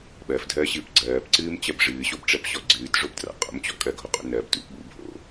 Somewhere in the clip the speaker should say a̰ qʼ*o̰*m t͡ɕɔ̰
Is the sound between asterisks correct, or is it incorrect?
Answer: correct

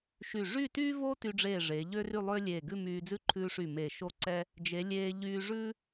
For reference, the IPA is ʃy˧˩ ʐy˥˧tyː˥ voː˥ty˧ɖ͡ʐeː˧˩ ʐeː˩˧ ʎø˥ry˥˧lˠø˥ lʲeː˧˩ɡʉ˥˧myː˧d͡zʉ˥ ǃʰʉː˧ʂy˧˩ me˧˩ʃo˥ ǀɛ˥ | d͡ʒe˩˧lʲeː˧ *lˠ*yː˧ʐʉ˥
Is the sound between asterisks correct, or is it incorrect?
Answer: incorrect: ʎ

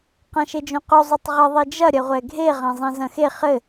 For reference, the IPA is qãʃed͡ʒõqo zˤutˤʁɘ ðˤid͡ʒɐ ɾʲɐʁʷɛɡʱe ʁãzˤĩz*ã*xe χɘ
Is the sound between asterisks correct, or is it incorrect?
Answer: incorrect: ɐ̃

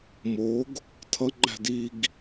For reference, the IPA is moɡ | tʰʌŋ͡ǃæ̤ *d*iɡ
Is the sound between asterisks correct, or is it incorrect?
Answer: correct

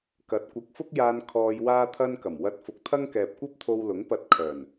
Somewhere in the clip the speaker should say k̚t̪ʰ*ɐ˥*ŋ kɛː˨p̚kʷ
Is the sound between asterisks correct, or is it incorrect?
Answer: correct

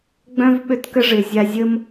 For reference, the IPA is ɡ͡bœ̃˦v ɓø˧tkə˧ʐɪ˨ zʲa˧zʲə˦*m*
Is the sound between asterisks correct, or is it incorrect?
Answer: correct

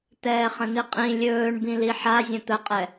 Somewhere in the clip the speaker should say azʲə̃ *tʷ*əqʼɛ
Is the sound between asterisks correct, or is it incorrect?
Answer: incorrect: t̪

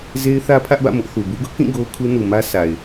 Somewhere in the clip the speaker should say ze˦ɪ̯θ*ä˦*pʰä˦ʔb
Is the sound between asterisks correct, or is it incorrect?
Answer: correct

